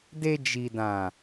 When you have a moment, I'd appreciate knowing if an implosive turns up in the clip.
no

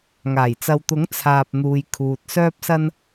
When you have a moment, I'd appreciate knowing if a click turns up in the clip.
no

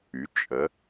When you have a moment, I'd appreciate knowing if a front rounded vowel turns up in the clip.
yes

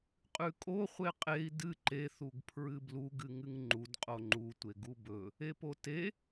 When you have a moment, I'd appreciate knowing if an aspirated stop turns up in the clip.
yes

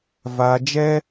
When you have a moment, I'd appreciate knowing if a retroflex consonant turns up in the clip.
no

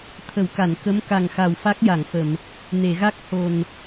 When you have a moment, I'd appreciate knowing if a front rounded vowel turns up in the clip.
no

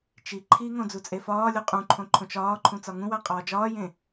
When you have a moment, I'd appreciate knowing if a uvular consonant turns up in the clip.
yes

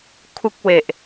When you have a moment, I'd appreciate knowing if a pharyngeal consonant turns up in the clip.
no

